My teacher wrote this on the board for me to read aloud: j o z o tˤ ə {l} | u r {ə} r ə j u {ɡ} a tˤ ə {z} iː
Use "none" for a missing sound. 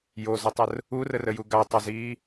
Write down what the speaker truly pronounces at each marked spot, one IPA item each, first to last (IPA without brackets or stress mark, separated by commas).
r, ə, ɡ, z